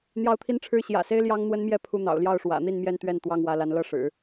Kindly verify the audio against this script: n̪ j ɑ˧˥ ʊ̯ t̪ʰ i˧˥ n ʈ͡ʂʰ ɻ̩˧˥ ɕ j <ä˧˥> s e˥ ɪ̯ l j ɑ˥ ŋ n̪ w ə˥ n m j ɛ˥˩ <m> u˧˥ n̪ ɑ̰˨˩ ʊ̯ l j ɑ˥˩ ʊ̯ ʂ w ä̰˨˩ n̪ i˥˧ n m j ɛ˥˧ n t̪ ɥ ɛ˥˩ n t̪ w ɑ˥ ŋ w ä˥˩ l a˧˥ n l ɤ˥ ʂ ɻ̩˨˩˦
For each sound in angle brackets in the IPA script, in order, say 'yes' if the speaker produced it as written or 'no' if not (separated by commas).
no, no